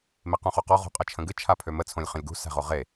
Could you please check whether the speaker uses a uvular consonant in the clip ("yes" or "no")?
yes